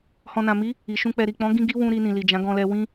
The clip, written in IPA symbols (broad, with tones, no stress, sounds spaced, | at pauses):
h ɔ̃˨ n ã˨ m i˨˦ | i˨ ʃ ũ˧ k͡p ɛ˨ ɾ i˨ k͡p ɔ̃˨˦ ɡ ĩ˦ ɡ i˦ w ũ˧ ɾ i˧ n ĩ˨ l i˨ d͡ʒ ã˨˦ ɡ ɔ̃˧ l ɛ˧ w ĩ˦